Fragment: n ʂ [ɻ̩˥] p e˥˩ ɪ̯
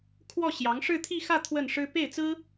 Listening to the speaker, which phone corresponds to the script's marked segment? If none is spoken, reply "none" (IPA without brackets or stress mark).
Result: ɻ̩˥